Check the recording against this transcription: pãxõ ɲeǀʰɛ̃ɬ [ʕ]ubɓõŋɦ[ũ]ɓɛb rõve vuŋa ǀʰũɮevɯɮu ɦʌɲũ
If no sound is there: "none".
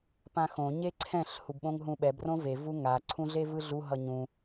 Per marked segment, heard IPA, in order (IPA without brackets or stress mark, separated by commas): h, ũ